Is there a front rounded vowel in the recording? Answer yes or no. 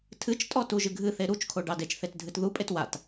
no